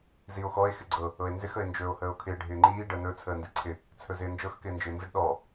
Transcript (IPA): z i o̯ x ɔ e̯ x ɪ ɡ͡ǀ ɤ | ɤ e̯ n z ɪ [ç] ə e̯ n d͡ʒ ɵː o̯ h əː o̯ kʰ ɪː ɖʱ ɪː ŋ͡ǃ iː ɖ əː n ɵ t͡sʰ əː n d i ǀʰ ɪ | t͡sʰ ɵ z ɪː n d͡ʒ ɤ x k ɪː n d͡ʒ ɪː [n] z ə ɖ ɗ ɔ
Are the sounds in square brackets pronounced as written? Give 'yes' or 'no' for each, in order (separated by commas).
no, yes